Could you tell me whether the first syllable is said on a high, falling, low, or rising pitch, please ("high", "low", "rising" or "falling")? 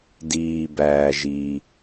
low